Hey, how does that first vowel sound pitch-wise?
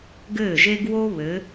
falling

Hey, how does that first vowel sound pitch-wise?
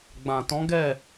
low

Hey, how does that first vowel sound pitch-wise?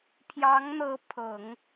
rising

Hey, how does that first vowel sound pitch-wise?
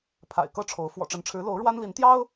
low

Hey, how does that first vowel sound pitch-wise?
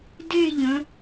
falling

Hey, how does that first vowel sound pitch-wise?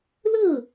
falling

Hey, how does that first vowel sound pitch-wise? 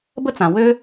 high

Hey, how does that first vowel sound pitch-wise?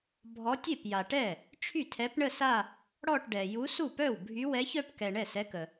rising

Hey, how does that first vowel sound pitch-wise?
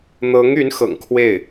rising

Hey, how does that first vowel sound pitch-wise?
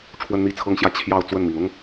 high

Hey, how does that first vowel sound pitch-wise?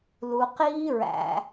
low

